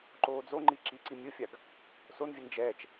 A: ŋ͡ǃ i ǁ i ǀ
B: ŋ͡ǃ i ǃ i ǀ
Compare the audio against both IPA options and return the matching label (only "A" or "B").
A